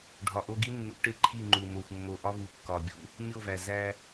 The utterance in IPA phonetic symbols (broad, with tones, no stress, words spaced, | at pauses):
ɖʱɒ˨ʔo˦ɡi˦nːṵ˨˦ ʈe˦ǃʰi˦˨ŋ͡ǃu˨mo˨xʷ mːo˨ ʔɒ˦vu˨ kːɒ˨bʲṵ˦ | mʲo˦˨væ˨ zæ˦